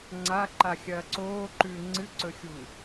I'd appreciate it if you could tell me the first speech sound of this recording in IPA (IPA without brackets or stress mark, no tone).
ŋ͡ǀ